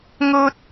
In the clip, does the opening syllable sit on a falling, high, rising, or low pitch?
high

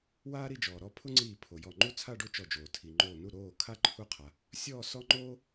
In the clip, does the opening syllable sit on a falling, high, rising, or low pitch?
high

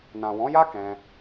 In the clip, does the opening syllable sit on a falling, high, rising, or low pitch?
low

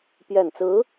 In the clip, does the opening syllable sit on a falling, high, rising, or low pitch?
low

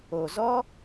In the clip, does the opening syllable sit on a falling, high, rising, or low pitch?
low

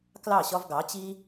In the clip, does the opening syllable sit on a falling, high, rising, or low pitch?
falling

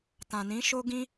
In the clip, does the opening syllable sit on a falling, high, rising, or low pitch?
low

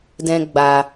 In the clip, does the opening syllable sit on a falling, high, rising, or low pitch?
high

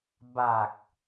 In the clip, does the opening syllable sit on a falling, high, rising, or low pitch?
low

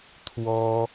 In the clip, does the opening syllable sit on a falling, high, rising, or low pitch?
high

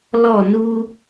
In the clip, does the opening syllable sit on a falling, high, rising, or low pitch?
falling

